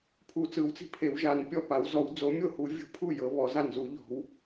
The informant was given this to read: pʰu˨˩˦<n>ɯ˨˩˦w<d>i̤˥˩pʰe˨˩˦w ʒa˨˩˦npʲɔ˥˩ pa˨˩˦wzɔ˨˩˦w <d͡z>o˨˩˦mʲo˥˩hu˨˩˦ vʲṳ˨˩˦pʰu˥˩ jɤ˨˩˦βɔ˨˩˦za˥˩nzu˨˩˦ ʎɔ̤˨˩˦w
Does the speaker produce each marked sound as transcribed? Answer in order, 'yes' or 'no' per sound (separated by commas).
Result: no, no, yes